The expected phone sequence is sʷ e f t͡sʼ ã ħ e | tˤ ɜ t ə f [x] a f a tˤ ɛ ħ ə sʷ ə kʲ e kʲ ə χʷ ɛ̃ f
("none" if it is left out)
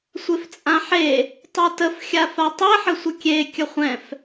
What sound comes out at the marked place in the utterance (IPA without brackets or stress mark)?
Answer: xʲ